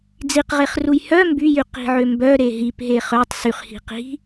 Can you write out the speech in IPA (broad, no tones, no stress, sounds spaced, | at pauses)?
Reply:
d͡z i q ʁ e χ r u j h œ m b y j y q i̤ ʕ ø m b œ ɾ e ɦ i p ɦ e χ œ tˤ s y χ h i̤ q i̤